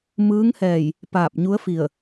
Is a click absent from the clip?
yes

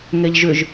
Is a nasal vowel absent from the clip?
yes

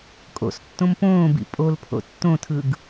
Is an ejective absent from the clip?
no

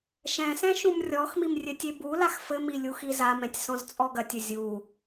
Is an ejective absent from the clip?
no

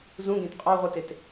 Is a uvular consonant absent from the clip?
no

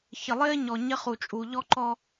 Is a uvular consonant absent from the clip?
no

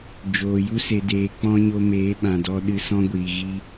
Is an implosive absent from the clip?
no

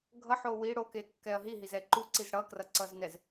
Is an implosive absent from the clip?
yes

